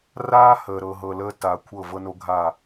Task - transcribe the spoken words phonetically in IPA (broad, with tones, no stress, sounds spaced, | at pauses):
r aː˦ h əː˨ ɾ ɤ˨ ɦ ɤ˨ l əː˧ t a˨ kʷʰ ɤ˦˨ v ɤ˦ n o˦ ɡʱ a˦˨